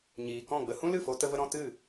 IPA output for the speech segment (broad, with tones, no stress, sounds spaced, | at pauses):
ɲ iː˨ k ɔ̃˦˨ ɡ͡b ə˧ h ũ˦ l ɨ˦˨ f o˧ t ə˦ v ə˦ ɾ ɔ̃˧ t ɨ˦˨